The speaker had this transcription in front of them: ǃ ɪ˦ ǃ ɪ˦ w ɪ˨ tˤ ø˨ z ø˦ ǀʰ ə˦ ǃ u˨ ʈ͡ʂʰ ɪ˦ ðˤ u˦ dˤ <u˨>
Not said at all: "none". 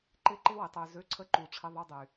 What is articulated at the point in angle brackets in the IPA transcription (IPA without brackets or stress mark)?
y˨